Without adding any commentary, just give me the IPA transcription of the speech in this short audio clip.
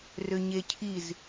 rʏɲecʰiz

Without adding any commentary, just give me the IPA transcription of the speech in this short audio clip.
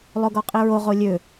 lˠoɡɔqʼiɹo ʁolʲø

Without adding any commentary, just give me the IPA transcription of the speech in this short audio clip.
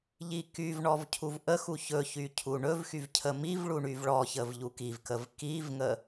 ʎikyvɳɔv cʰuvʔəxu çɵçy cʰuɳɵvxyv cʰəmivɭu ɳyvɭɔçəv ʎukivkəv kivŋə

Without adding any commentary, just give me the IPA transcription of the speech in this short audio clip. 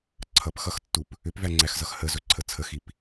ǀʰʌpxʌxtːup | ʏpvæŋ͡ǀæxzʌx həzɵǀʰə t͡sʰəxip

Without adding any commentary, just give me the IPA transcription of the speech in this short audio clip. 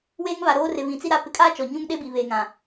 weː˦ŋβa˨ɾoː˦rɪ˨ βĩ˨t͡si˦ ɾa˦ pɪ˨kʼaː˦ t͡ʃɔ˨ɲũ˦ŋɗe˦bi˨ βeː˨ŋã˨

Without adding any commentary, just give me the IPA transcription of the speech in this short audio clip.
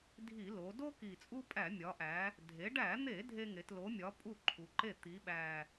dʱi˧˩˧lo˩˧ do˦ki˨˩ t͡sʼu˦pʼæ˧˩˧mʲɒ˩˧ʔæ˩˧ | dʱe˩˧ɖæ˧˩˧n̪e˧˩˧ dʱe˦ŋe˩˧tlo˨˥mʲɒ˨˥ pʼu˥˩ǃʰu˩˧ǃe˥˩ t̪i˩˧ɓæ˨˩

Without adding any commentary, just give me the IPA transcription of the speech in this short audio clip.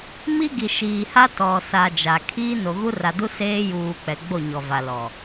mi˦ ɡi˨ʃiː˨ha˦ tɔ˨sa˨ d͡ʒa˨ kʰiː˦ no˨ɣu˦ ra˨du˦ seː˦juː˨ k͡pɛ˨ɡ͡bo˦˨ ɲɔ˨va˨lɔ˨

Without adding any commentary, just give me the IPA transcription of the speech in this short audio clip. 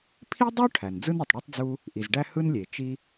pʰi˥dˤu˥ ʈʰæ˩nd͡zɯ˥nø˩tˤ ɽø˥tˤd͡zu˥ | ʔi˩zɖæ˥ hɯ˥nlʲe˩ t͡ʃi˥

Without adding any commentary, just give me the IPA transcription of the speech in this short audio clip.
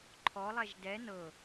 ǃʰɔlˠɛʒ dɛ nɤ

